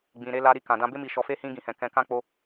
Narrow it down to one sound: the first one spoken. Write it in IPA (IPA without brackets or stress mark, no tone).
ɡ͡b